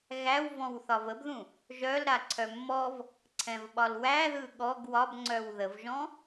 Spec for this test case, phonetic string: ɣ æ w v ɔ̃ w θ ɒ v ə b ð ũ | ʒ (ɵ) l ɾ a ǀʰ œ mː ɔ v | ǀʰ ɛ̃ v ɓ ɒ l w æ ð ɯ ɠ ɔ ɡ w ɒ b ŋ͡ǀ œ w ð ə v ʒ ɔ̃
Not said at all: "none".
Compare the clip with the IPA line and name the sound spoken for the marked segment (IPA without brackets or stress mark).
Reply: œ